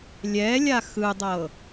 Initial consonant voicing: voiced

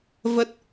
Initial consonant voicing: voiced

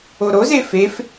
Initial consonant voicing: voiced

